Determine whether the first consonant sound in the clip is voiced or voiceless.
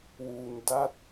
voiced